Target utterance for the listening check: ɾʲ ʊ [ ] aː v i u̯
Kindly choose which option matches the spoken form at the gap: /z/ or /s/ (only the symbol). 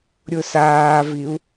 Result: s